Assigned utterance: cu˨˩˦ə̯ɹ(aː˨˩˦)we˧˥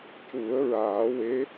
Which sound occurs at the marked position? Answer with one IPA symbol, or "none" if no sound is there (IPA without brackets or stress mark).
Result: aː˨˩˦